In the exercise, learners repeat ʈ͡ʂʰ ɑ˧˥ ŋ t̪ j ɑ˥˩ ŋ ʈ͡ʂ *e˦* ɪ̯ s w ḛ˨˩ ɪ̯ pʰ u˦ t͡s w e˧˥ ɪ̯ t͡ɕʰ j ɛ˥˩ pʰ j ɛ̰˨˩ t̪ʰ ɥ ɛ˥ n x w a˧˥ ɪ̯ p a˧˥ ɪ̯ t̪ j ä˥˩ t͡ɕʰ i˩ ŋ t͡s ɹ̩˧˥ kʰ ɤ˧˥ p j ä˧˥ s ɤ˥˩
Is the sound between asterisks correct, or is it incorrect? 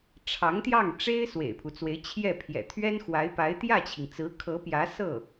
incorrect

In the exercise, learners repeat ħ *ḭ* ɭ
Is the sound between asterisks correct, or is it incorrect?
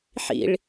correct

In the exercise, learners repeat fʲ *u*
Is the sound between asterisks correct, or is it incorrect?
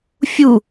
correct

